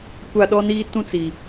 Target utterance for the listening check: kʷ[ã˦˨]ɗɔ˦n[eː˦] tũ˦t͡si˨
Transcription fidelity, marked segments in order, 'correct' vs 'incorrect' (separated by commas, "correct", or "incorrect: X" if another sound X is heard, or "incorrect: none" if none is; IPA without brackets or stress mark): incorrect: a˦˨, incorrect: iː˦